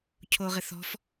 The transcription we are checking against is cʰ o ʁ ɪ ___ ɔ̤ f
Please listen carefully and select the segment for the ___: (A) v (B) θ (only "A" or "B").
B